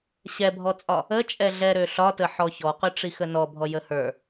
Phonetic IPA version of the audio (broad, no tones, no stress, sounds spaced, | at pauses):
ɕ ɛ bʱ ɔ t͡sʼ ɒ | ə t͡ʃʼ ɛ ɮ ɛ ɾ ø ɬ ɒ t ə ħ ɔ ç ɔ q ø ʈ͡ʂ i x ə n ɔ bʱ ɔ j ə h ə˞